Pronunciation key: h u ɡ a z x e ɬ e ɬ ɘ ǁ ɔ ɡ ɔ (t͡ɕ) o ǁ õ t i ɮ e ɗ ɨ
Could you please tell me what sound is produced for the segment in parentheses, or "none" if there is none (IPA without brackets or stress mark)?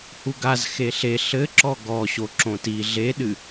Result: ɕ